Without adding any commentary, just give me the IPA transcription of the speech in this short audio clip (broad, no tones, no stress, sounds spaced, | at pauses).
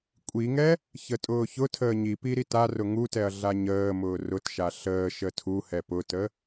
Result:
kʷʼ i ŋ ɛ | ç ə tʼ ʊː ç ʊ tʰ əː ɲ i p i ɾ i t a r ʊ ŋ u t ɛ ɐ̯ ɮ a ɲ əː m ʊː r ʊ t ʃ a ɬ əː ʃ ə tʰ u h ɛ p ʊ t ə